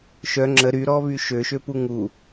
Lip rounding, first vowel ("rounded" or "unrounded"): rounded